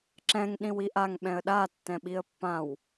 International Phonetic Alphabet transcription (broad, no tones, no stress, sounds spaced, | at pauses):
ǁ ɛ̃ ŋ ɗ ĩ w i ʔ a ŋ ɓ ɛ̃ ə̯ ɗ a tː ɛ̃ ɓ i ə̯ pː ã w